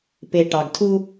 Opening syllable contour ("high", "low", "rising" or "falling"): low